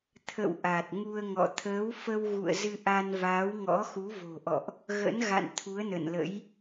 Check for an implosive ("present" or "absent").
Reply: absent